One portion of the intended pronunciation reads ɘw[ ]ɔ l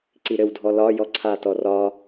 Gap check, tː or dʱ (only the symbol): dʱ